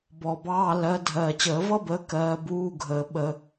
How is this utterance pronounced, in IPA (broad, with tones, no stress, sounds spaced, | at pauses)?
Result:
b ɔ˨˩ b ɑː˧˥˧ l ɜ˨˦ dʱ ɜː˨˩ t͡ɕ əː˧˩˧ v ʌ˥ b əː˨˦ k ɜː˨˦ b uː˧˥˧ ɡʱ əː˧˩˧ ɓ ə˧˩˧